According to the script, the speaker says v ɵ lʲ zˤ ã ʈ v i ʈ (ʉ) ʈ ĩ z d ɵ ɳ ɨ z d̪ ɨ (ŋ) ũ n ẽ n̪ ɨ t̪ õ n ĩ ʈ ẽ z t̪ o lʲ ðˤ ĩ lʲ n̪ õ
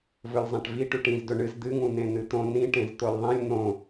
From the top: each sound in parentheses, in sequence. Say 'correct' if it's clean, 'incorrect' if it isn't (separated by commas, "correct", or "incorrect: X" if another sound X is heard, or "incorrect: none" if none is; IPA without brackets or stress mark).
correct, correct